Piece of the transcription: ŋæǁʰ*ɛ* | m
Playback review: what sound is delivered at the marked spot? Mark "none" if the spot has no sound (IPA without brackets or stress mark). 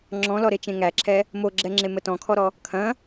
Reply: ɛ